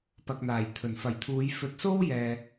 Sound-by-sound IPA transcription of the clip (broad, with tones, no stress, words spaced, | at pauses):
pɐ˨k̚n̪aː˨˩j t̪ʰɵ˨˩nfɐ˨˩jt̪ʰuː˨˧j fɵ˨˥t̚so˥wjɛː˨